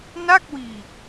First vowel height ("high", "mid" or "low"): low